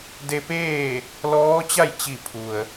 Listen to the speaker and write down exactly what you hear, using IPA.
d e˧ p eː˥˨ | l ɔː˧˥ t͡ɕ a˥˨ j t͡ɕ i˧˩ pʰ u˩ ə̯

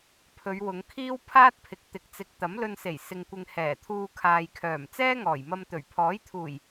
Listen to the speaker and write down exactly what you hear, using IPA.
pʰ ɵ˨˧ ɥ w ʊ˨˧ ŋ kʰ iː˥ w pʰ aː˥ t̚ pʰ ɪ˨ k̚ t̪ ɪ˨ k̚ t͡s ɪ˨˥ k̚ t̪ ɐ˨˥ m l ɵ˧ n s e˨˩ j s ɪ˧ ŋ kʷ ɪ˧ ŋ h ɛː˨˩ t̪ʰ uː˧ kʰ aː˨ j kʰ œː˨˩ m t͡s ɛː˥ ŋ ɔː˨˩ j m ɐ˧ m t̪ ɵ˨˩ ɥ pʰ ɔː˨˥ j t̪ʰ uː˨˩ j

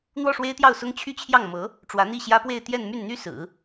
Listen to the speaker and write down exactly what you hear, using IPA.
n̪ w ɔ˥˩ ʂ w e˥ ɪ̯ t̪ j ɑ˥˩ ʊ̯ s ʊ˥ ŋ t͡ɕʰ y˥˧ t͡ɕʰ j ɑ˥˩ ŋ m ɤ˧˥ | ʈ͡ʂ w ä˧˥ n̪ i˥˩ ɕ j ä˥ p w e˥˧ ɪ̯ t̪ j ɛ˥˧ n m y˥˩ n n̪ y˥ s ɹ̩˨˩˦

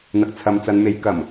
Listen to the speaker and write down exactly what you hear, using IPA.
n̪ ɐ˨ k̚ t͡sʰ ɐ˨ m t͡s ɐ˨˧ n m e˨˥ j k ɐ˨˩ m

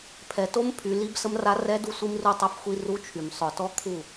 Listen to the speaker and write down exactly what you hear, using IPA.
pʰ ɛ˨ t o˦ m pʰ y˨ l i˦ b s ə˦ m r a˦ r ɛ˦ d u˦ sʷ i˦ m r u˦ tˤ œ˦ f xʷ i˦ r u˦ t͡ʃʰ y˨ m sˤ œ˨ t ɔ˦ kʰ u˦˨

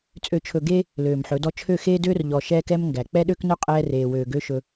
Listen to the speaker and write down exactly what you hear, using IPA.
t͡sʼ ø˨ t͡ʃʰ ɵ˨ ɡ eː˦ | l øː˨ m ħ ɵ˨˦ d ɔ˦ t͡ʃʰ ø˦˨ x eː˦ d øː˦ r ʎ ɔ˨ ʃ ɛː˦ k ɛ˦ m ŋ ɡ æ˨ k͡p ɛ˦ ɗ ø˦ k n œ˦ qʼ ɛː˦ r eː˨ w øː˨ ɡ ø˦ ʃ ɵ˦

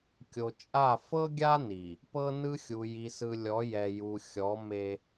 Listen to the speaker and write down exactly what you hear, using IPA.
kʲ o˨ t͡ʃʼ a˦˨ f ɤ˦ ɡʲ a˦ n i˨ | p ɤ˦ n ɯ˦ xʲ u˨ j i˨ s ɯ˨ lʲ ɔ˨˦ j ɛ˨ j u˨ xʲ ɔ˨˦ m e˦

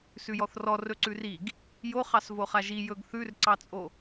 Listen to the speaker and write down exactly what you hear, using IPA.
s ʉ j ɔ θ r ɔ r ɵ ǀ ʉ r i ɡ | j o χ ɑ s v o χ a ʒ i j ɵ ɡ θ ʉ r ǀ ɑ t͡sʼ o

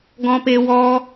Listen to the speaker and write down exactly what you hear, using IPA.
ɡ ɔ̃˦ p e˦ w ɔ˦

